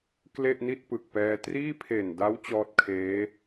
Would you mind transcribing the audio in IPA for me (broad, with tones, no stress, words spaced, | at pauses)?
kle˥˩ʔni˥˩t̚ pɯ˨˩k̚pɛː˧ triː˥˩pʰeː˨˩nda˦˥w t͡ɕɔː˦˥t̚kʰeː˦˥